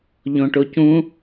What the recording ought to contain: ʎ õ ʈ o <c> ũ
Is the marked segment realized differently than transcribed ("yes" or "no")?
no